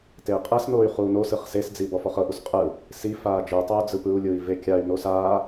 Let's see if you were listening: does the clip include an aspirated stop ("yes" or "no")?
no